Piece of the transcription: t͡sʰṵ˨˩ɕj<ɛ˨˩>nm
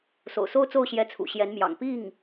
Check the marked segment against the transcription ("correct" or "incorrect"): incorrect